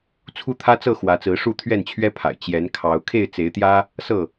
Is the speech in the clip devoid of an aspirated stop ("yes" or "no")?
no